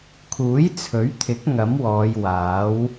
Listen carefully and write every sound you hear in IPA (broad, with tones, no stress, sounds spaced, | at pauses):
kʰ uː˨˥ j t͡sʰ ɵ˨˥ ɥ t̪ʰ ɪ˨˥ k̚ ŋ ɐ˨˥ m w ɔː˨˧ j w aː˨˥ w